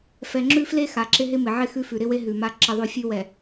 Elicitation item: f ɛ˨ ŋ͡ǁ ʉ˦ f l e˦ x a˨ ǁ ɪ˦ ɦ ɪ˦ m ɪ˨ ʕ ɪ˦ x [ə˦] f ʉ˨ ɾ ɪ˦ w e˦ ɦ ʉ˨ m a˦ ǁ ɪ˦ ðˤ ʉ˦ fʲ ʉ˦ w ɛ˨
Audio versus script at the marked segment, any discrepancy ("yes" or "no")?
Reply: yes